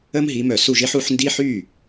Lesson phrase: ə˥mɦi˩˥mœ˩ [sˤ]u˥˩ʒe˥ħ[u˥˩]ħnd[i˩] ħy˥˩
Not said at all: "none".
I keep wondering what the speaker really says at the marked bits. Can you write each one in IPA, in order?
s, u˩˥, i˥

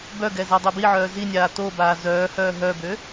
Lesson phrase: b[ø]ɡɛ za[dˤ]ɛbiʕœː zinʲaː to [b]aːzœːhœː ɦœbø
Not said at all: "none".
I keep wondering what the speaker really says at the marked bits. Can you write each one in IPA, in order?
œ, dˤ, b

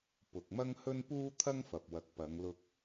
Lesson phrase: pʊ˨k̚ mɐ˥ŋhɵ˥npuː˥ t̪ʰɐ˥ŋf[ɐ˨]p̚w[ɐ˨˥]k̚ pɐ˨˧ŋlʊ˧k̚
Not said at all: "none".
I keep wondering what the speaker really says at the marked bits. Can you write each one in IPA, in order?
ɐ˨, ɐ˨˥

